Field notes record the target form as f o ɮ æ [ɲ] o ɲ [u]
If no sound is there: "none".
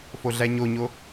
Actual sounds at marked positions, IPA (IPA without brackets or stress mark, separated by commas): ɲ, o